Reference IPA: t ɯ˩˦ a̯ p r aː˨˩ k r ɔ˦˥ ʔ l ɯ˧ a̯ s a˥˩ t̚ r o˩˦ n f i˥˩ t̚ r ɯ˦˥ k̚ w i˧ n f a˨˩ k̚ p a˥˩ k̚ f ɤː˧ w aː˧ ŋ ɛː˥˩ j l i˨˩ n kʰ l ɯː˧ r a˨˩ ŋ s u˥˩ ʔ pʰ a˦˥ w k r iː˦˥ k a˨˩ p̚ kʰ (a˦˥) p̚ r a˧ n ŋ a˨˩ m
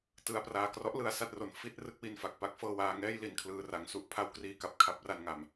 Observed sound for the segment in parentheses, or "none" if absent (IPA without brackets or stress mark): a˦˥